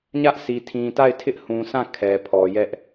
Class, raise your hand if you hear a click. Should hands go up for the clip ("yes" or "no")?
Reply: no